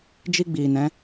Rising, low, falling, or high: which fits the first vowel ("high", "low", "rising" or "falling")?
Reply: high